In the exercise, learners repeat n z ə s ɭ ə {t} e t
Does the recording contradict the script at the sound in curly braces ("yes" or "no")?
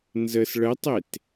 yes